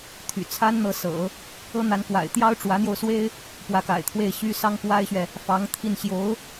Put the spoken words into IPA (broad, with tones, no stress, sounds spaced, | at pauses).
t̪ʰ y̰˨˩ t͡sʰ a˥ n n̪ ɤ˧˥ s ɤ̰˨˩˦ | ɤ˥ n̪ a˧˥ n k w a̰˨˩ ɪ̯ t̪ j ɑ˥ ʊ̯ ʈ͡ʂ w ä˧˥ n̪ j o˧ ʊ̯ s w e˥ ɪ̯ | p w ä˧˥ k a̰˨˩ ɪ̯ t̪ʰ w e˥˩ ɪ̯ ɕ y˥ s ɑ˥ ŋ k w a˥ ɪ̯ ɕ ɥ ɛ˨ | f ɑ˧˥ ŋ t̪ʰ i˥˩ n ɕ j o˧˥ ʊ̯